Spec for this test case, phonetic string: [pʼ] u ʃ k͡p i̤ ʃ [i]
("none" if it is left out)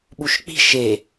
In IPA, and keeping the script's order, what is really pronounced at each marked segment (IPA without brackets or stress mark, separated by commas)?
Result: ɓ, e